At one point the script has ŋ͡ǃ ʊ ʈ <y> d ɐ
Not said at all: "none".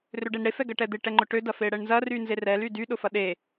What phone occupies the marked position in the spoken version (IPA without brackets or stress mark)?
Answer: ø